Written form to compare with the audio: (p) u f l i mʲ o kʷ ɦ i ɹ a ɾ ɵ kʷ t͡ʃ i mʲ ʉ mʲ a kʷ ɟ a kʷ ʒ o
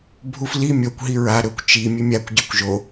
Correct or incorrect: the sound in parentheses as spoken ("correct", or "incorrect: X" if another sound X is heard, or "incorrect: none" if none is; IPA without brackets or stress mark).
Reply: incorrect: bʱ